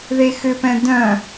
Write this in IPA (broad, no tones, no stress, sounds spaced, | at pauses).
ð e x ʏ p ɛ̃ d œ̃